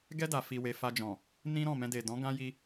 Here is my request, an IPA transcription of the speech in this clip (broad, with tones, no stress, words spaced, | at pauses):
ɡɛ˦ da˧fi˧we˧ fa˧d͡ʒɔ̃˨ | nĩ˦ɾɔ̃˦˨mɛ̃˧de˨ dɔ̃˨˦ ɡã˦ji˧